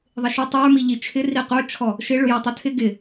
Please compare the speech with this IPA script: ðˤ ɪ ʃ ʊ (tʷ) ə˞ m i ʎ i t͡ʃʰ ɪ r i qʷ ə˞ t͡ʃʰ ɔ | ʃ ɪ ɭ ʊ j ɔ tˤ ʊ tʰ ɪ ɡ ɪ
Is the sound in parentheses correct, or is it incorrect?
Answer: incorrect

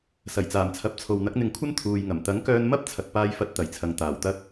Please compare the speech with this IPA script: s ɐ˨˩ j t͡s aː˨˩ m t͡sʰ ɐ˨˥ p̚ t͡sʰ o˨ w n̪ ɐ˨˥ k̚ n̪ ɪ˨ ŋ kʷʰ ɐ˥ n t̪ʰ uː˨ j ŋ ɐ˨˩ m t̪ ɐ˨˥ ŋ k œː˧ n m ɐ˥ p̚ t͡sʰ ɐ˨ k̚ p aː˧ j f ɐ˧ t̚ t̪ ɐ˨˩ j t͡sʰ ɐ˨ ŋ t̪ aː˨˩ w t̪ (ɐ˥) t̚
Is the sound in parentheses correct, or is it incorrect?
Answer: correct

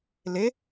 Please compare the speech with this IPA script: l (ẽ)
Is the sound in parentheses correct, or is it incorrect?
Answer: incorrect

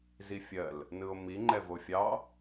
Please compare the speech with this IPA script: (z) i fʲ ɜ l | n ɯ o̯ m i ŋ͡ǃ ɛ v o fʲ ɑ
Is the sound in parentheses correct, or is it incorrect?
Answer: correct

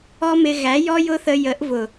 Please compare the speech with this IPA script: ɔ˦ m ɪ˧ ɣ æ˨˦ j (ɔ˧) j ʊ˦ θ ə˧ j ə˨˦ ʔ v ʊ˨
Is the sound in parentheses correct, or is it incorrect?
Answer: incorrect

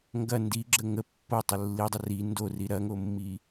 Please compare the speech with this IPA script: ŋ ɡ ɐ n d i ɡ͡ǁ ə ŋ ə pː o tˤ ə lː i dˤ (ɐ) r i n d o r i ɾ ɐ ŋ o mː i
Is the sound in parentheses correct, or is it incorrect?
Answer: incorrect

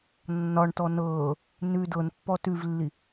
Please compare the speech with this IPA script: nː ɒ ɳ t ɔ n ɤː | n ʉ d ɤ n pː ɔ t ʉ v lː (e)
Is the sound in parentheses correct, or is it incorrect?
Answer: incorrect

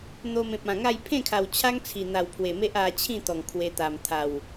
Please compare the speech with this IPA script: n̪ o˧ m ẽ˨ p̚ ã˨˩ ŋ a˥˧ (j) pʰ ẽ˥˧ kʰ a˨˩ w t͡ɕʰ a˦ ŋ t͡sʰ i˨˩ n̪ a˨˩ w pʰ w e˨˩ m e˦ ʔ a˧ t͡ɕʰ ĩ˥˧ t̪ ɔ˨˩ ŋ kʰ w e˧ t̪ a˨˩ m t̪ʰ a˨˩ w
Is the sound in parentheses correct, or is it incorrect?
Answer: correct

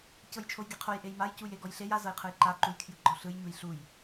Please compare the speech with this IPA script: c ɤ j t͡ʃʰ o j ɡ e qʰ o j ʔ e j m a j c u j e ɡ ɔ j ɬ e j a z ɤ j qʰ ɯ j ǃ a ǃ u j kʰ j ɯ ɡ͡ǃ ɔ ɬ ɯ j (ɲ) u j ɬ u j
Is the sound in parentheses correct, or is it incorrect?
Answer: correct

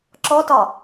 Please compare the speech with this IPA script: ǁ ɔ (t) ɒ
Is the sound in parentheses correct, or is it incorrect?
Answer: correct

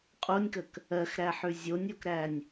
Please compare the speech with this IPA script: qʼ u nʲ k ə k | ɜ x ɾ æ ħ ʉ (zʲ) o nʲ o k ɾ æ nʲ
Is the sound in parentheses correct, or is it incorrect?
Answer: correct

